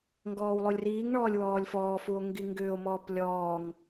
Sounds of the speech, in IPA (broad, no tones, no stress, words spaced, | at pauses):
ŋɡɔːwlˠulʲriːŋɳɔːlʲ wɔːlʲfɔːfuo̯ ŋɡiŋɡʏːo̯mɔːp lʲɔːŋ